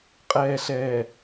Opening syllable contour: low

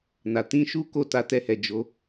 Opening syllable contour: low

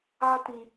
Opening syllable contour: high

